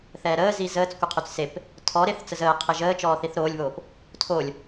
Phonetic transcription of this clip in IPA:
θ ɛː ɾ əː z i z əː t͡s kʷ ə qʰ y t͡s s e p | tʰ ɔ ɾ e θ t͡s ə z əː qʰ e ʒ əː t͡ʃ ɔː θ i θ ɾ oː lʲ β oː p | tʰ o lʲ

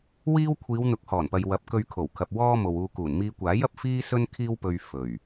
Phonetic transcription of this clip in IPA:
w iː˥ w kʷʰ iː˨˧ w n̪ ʊ˨˥ k̚ h ɔː˨˩ n p ɐ˨ j w ɐ˨˥ p̚ k ɵ˧ ɥ kʰ o˨˩ w kʰ ɐ˨ p̚ w ɔː˥ m o˨ w uː˧ k uː˨˩ n m iː˧ kʷ aː˨˥ j ɐ˨ p̚ f iː˥ s ɵ˥ n kʰ iː˥ w p ɵ˧ ɥ f ɵ˨˩ ɥ

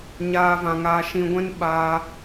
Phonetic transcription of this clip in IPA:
ɲ aː˦ v ã˧ ŋ aː˦ ʃ ĩ˧ ɡʷ ɛ̃˦ n ɓ aː˧

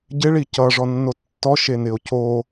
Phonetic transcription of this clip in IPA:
ɟ ɪ ɭ i c ʌ ʐ ɔ nː o tː ɔ ʃ e n ɪ o̯ c o

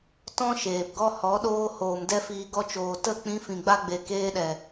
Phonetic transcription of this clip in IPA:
t ɔ̃˦ ʃ eː˨ p ɡ ɔ˦ h ɔ˨˦ ɗ oː˦ h oː˨ m d ɛ˦ f iː˧ ɡ ɔ˧ t͡ʃ oː˨ t ə˦˨ k͡p ĩ˧ f ĩ˨ ɡ͡b a˦ ɡ͡b e˨ k eː˧ ɗ ɛ˨

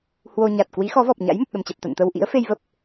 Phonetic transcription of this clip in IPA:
h w o˧ ɲ a˨˩ t̚ k w i˨˦ x ɔ˨˦ v ɔ˨˩ p̚ ɲ a̰˧˥ j m ə˨˩ p̚ ɗ ə˨˩ m t͡ɕ ɛ˨˩ p̚ t̪ a̰˧˨ n t̪ ə˧ w ʔ ḭ˧˥ ə̯ f e˧ j v ə˦˥ p̚

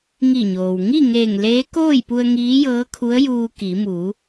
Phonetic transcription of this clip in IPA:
ŋ i˧˩ ɲ oː˩ w ŋ i˥˨ ŋ eː˧˩ ŋ l eː˧˥ k oː˥˨ j p u˧ ə̯ ŋ iː˧˥ j ɤː˧˥ kʰ u˧˥ ə̯ j uː˧ k i˩˧ m uː˩˧

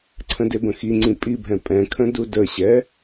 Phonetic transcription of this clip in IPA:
ǀʰ ə̃ d e b ə̃ x i ŋ͡ǀ ĩ pʼ i bʱ ɛ̃ pʼ ɛ̃ kʰ ə̃ d u d ə ɕ ɛ

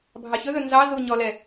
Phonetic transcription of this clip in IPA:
bʱ ɑ ç ɵ ð ɵ n z ɑ z u ɲ ɔ l ɛ

